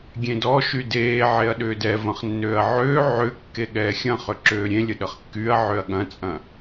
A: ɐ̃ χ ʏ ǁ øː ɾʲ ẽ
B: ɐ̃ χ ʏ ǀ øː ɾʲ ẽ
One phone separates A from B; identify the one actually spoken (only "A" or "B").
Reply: A